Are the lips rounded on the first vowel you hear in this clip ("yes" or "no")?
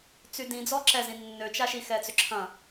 yes